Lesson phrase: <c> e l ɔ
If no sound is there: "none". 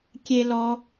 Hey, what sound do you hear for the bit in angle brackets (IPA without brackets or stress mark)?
kʲ